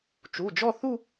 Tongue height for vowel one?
high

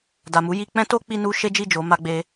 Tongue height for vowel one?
low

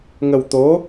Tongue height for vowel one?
mid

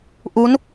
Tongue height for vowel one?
high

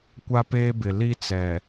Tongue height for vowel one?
low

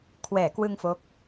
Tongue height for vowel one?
mid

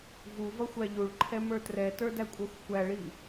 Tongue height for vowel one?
high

